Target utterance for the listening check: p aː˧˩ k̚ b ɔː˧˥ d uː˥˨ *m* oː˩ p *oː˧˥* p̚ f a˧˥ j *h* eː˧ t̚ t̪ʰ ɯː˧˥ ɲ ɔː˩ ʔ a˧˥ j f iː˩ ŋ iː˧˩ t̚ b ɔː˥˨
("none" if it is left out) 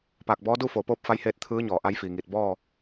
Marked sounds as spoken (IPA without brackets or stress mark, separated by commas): f, oː˥˨, h